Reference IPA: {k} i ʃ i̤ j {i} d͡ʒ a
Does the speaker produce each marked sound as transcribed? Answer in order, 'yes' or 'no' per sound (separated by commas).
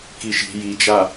yes, yes